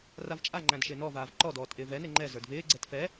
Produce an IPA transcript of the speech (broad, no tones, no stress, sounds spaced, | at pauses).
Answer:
r a v t͡ʃʼ a ŋ͡ǃ æ̃ d ʃ ɪː n ɔ v aː v ǃ ɔ d ɔː t ʔ ɪː v ɛ n e ŋ͡ǃ ɛ z ə˞ d v ɪː ɡ͡ǀ ɛ t f ɛ